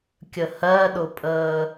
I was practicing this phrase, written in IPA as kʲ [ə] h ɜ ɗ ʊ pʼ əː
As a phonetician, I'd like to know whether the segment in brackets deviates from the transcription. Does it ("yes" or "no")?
no